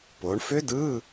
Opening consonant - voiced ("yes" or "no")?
no